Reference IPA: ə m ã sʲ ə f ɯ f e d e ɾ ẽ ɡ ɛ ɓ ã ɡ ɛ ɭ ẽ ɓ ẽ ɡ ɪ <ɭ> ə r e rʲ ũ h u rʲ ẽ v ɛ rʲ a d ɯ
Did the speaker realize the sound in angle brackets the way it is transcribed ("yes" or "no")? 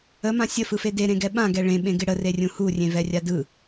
no